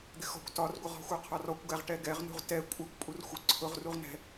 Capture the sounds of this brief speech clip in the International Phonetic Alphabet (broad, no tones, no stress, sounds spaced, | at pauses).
d̪ ɪ x ɔ̤ kʷ t ɒ r ɡʷ ə ʁ ɔ̤ xʷ ɜ qʰ ɒ r ɔ kʷ ɡ æ ʁ ʈ ɛ ɡ ɛ ʁ n ṳ ʁ t ɛ kʷʼ ɜ kʷ pʼ u r xʷ ə ǀʰ ʊ ʁ r u ʁ n ɛ̤